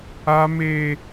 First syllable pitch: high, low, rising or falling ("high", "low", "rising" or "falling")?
high